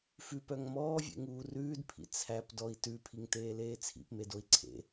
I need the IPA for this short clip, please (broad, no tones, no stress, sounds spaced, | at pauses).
f ʉ p œ ŋ m ɔː vʲ ḛ ŋ uː r ʉː d pʰ ḭ t͡sʰ æ p d ɔ i̯ t ʉ pʰ i ŋ t eː l eː t͡sʰ ḭ p m e d o i̯ ǀʰ ḛ